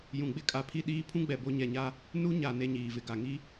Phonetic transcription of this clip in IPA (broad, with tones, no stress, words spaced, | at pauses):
jũ˨ɡ͡bɪ˦kʼa˨ pʰi˦ ɗiː˦ pʰũ˦ɡ͡bɛ˨ bo˦ɲɛ˨ɲa˦ | nu˦ɲa˨ ne˦ɲiː˨vɪ˨ ɡa˨ŋi˦